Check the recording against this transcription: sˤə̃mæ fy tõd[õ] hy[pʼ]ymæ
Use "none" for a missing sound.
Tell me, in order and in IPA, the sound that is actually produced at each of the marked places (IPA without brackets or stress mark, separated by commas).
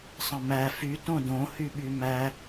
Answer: õ, ɓ